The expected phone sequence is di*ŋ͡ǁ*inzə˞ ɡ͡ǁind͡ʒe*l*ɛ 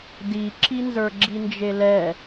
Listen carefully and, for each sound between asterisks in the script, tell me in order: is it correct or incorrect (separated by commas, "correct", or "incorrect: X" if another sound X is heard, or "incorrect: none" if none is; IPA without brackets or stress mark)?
incorrect: ǁ, correct